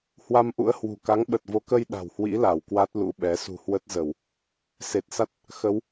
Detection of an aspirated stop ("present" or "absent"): absent